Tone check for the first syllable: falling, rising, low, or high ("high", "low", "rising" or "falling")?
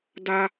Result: high